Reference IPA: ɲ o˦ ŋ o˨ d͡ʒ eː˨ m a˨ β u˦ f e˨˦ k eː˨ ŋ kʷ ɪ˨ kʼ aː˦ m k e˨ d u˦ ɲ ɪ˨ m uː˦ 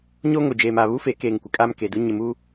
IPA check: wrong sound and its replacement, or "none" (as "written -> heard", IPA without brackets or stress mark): none